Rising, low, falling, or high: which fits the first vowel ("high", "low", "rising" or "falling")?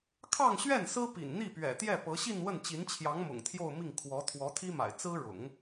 falling